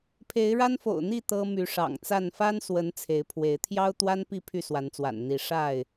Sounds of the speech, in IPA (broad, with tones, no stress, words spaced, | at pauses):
pʰe˨˦ɪ̯ɻa˦nfo̰˨˩ʊ̯n̪i˥˨ t̪ɤ˦ my˨˦ʂɑ̰˨˩ŋt͡sa˥˨n fa˦n swə˨˦n t͡sʰe˨˦ɪ̯pʰwe˨˦ɪ̯ t̪ʰjɑ˦ʊ̯t̪wa˦n pi˥˨pʰy˥˨swa˨˦nt͡swa̰˨˩n n̪i˨˦ʂa˥˨ɪ̯